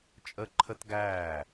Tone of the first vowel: high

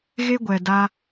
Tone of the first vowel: high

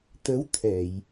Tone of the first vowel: rising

